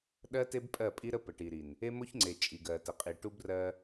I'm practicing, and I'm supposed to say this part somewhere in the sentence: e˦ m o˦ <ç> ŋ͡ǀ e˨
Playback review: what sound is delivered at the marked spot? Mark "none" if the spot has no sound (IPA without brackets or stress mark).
ç